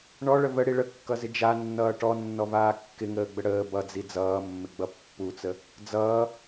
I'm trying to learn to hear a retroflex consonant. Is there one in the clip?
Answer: yes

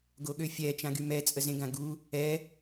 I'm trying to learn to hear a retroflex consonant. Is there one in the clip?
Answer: no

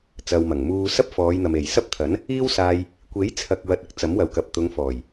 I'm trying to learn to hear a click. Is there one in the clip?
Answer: no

